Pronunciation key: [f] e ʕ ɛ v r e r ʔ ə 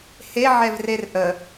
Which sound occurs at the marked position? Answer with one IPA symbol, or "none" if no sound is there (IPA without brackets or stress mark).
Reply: h